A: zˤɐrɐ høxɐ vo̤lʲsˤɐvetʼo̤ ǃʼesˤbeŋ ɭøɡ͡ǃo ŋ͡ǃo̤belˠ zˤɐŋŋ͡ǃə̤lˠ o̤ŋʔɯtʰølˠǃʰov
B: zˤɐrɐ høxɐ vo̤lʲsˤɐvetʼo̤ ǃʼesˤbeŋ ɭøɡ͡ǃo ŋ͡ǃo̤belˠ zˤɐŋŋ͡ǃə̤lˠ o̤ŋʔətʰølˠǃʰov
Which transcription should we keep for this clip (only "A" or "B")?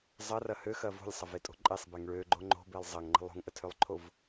B